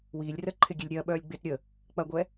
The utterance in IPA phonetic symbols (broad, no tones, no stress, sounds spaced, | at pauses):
w iː lʲ r ə ǃʰ ɪ ɡʲ e lʲ ɾʲ ɐː ɓ œː lʲ ɡ͡b ɪː t ɾʲ ə | k͡p ɐ ɡʷ ɛ